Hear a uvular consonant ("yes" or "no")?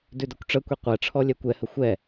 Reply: yes